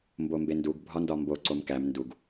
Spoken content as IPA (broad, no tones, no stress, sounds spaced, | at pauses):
m b o m b e n d u ɡ bʱ ɒ n d ɒ m b o ǀ o m k æ m n d u ɡ